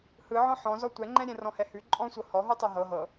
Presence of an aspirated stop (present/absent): absent